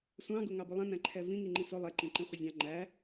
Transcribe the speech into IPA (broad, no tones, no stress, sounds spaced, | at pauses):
sʷ ɑ̃ ɡ ʊ ŋ ɑ b ʊ lˠ ɛ̃ n æ̃ ǃʰ ɛ v ĩ ŋ i ŋ͡ǃ ĩ s ʊ lˠ ɛ ǃ ĩ ǃ ĩ χʷ ɪ zʲ ɑ̃ ŋ͡ǃ æ